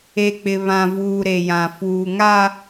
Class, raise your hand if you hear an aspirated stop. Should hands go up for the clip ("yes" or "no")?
no